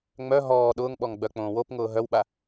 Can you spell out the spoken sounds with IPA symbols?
ŋ͡mœ ɦɔː ɗʊːŋɓɔŋɡ͡bœk͡põː wopŋʊː ɦœwɓa

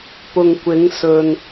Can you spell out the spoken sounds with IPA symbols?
pʊ˨ŋkʷɪ˨˧ŋsɵ˨n

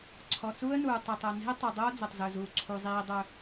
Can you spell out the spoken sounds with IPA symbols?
ǀʰɔ˨t͡suː˦ə̯nuː˨ tˤe˨tˤo˨ ni̤˦ə̯tˤu˨dˤoː˦ d͡zɵ˨tˤzɵ˨zuː˨ ǀʰu˨zˤiː˨ dˤɵ˨

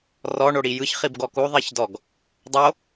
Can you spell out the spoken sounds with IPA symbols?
rɔ ɳoɽijɯç χibɡɔku ðˤiçdɔɡ | dˤo

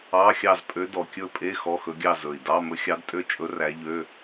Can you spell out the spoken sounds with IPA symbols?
ɑ˧˥˧xʲɑ˥˨z pʼø˧˥dɔ˨˩kʲɵ˥˨pʼe˧˥˧ xɔ˧˥˧xɵ˧˥ɡʲɑ˥˨ zɵ˨˩i̯dɑ˧˥˧ mɵ˧˥xʲɑ˧˥dtʼø˥˨t͡ʃʼɵ˧˥ ræ˧˥ʎø˧˥˧

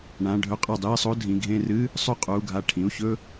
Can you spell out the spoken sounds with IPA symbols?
ɳã˩˧˩ ɖʱɵ˧˥˧qʼɐ˧˩dˤiː˥˧sˤo˧˥˧ dʱĩ˩˧˩ɡʱẽ˥˧ rɨ˧˥˧ | sˤʉ˥˧qʼuː˩˧˩ɡʱa˧˩ ʈʰĩ˩˧˩u̯çɵ˥˧

